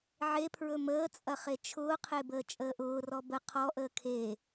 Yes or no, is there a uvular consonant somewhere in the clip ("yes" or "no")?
yes